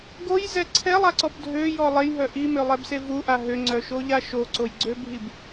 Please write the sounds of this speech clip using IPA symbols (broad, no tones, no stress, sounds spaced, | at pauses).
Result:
ɡ o j z ɛ ǀʰ ɛ lˠ a ǀ ɔ b dʱ ø j ɔ lˠ e j ɦ œ ʔ i m ø lˠ ɛ b s e v u ʔ a ɦ ø ŋ͡ǀ œ ʃ o ʎ a ʃ o ǀ o j ɡ͡ǀ ø bʱ i b